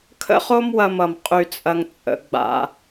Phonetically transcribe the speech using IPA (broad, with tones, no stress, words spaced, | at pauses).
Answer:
kʰə̰˦χo˦mwɐ˧mʌ˨m qʼy˧t͡sʼɐ˧ŋ t͡sʼə̰˨˦ ɡ͡ba̰˦